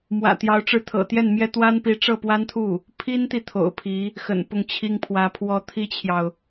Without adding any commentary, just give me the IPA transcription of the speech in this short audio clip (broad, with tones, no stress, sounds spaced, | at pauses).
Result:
m w ä̰˨˩ t̪ j ɑ˧˥ ʊ̯ ʈ͡ʂ ɻ̩˧˥ t̪ʰ ɤ̰˨˩ t̪ j ɛ˥˩ n m j ɛ˥ t̪ w a˥ n p i˧˥ ʈ͡ʂ ɤ˥˩ p w a˥ n t̪ʰ u˥˩ | pʰ i˥ n t̪ i˨ t̪ʰ o̰˨˩ ʊ̯ pʰ i˧˥ | x ə̰˨˩ n p ʊ˥˩ ŋ t͡ɕʰ i˥ ŋ pʰ w ä˧˥ pʰ w ɔ˥ t̪ʰ i˥ t͡ɕʰ j ɑ˨ ʊ̯